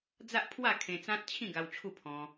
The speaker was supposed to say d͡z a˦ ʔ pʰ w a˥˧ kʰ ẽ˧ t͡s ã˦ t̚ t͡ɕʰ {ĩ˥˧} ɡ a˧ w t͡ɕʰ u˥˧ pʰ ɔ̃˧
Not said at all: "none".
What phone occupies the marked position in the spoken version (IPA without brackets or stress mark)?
ĩ˥˧